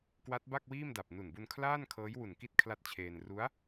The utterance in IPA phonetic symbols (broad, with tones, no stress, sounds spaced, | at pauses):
k w a˦˥ t̚ b a˥˩ k̚ w iː˥˩ m d a˨˩ p̚ n u˨˩ n b u˧ n kʰ l aː˥˩ n kʰ ɤː˦˥ j w u˨˩ n k i˥˩ t̚ kʰ l a˦˥ t̚ t͡ɕʰ eː˧ n r u˦˥ a̯